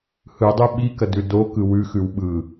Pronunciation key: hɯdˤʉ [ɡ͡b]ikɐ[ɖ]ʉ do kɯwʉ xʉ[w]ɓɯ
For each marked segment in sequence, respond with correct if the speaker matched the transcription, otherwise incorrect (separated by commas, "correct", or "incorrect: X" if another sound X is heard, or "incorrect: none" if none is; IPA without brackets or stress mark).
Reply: incorrect: ɓ, incorrect: d, correct